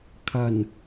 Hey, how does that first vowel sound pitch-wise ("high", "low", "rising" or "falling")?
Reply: low